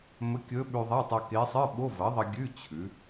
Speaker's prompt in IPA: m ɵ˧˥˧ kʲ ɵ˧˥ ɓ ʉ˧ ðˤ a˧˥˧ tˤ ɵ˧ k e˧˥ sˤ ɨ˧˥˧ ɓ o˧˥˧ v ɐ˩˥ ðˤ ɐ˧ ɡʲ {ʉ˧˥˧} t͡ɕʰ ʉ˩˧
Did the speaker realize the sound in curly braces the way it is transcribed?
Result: yes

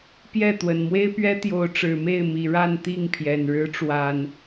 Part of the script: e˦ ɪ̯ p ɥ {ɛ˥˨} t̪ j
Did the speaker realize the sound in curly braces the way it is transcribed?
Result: no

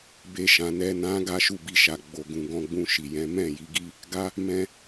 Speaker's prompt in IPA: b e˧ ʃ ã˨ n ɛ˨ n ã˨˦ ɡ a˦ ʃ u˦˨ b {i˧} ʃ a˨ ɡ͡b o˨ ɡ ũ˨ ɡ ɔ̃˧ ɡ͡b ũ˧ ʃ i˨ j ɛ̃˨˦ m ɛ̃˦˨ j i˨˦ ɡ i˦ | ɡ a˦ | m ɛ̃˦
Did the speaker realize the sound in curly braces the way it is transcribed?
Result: yes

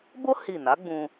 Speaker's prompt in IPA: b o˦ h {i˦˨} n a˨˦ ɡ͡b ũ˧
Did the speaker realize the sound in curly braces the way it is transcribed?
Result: yes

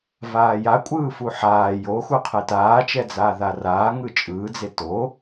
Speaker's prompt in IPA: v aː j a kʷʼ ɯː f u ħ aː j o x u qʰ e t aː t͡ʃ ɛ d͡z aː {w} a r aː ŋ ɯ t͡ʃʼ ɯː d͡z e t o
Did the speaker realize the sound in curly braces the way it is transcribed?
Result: no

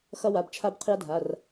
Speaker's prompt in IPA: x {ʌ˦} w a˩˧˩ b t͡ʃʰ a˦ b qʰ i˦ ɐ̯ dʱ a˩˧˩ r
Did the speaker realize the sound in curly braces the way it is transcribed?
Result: yes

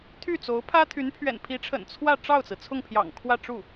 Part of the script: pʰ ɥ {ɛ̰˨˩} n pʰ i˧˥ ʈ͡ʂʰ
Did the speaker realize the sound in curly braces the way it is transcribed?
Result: yes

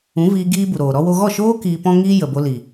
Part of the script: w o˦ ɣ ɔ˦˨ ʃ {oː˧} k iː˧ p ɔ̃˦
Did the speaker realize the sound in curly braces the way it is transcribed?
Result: no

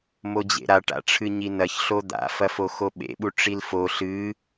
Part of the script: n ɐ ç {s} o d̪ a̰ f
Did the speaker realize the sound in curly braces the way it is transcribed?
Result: no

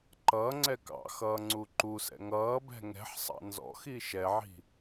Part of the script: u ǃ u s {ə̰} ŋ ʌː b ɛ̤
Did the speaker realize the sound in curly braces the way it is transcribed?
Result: no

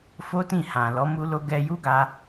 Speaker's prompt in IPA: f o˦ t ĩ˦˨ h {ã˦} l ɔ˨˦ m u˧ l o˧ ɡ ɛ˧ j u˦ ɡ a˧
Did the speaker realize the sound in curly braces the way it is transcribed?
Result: no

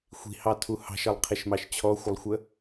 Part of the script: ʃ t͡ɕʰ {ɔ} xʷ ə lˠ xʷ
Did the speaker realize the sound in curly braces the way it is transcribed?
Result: yes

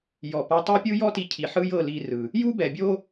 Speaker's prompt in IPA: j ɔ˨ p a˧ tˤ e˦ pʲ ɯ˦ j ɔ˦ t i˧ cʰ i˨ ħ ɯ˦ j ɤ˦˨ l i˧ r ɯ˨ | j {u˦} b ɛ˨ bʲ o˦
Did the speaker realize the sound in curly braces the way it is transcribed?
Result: yes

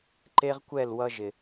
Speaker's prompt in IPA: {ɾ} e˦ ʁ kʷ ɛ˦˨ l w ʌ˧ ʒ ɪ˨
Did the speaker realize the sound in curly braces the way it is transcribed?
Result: no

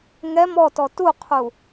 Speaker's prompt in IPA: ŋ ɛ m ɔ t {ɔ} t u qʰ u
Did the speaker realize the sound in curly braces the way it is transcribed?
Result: yes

